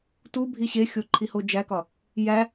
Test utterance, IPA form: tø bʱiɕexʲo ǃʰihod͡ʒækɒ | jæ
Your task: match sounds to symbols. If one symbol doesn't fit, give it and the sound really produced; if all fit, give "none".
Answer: ø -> u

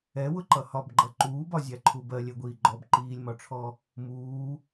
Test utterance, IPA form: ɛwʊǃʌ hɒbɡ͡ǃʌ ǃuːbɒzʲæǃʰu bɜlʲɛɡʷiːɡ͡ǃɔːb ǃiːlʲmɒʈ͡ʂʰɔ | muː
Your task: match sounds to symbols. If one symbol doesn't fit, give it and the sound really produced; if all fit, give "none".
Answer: none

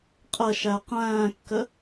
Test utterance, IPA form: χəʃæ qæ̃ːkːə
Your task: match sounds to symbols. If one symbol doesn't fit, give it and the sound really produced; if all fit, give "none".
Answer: χ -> qʼ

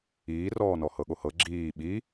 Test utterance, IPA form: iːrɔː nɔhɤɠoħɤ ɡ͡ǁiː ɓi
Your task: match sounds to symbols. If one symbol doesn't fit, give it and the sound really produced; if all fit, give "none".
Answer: ħ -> h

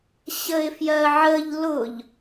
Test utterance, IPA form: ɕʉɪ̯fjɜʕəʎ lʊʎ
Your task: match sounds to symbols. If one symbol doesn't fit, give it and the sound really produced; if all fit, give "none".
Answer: ʉ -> ə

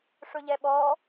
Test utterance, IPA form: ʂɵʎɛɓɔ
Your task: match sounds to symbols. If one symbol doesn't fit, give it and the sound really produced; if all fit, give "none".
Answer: none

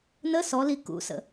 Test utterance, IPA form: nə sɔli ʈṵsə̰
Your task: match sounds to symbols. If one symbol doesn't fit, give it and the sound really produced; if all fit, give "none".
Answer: ʈ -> k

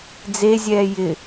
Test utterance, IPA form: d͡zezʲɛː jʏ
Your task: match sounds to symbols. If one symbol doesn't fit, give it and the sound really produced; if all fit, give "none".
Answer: ʏ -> ɪ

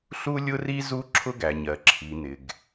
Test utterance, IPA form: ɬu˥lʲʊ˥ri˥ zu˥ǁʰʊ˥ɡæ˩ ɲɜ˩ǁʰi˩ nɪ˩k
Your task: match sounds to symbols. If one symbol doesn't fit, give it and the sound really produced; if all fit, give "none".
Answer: k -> ɡ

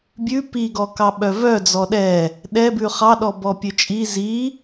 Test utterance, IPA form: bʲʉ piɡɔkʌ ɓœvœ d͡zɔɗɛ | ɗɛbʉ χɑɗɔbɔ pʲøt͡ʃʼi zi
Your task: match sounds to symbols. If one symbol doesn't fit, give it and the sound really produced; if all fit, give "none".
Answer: ʌ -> ɑ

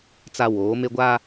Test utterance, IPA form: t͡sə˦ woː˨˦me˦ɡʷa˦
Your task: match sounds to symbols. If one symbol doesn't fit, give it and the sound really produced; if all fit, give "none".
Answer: ə˦ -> a˦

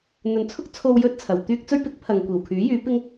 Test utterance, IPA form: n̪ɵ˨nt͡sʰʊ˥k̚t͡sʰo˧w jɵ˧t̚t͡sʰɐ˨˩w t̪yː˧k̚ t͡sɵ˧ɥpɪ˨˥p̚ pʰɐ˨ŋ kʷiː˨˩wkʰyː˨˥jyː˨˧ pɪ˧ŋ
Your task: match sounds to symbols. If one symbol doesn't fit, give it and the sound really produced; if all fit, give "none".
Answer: p̚ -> k̚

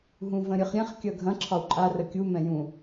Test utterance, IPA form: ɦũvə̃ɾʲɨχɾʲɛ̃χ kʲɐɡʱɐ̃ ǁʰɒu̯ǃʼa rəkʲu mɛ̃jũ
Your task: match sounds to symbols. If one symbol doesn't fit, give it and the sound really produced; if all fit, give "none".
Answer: none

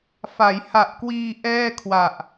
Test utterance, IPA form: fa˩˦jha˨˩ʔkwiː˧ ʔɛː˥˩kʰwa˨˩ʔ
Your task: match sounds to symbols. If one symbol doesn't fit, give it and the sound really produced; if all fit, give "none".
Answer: none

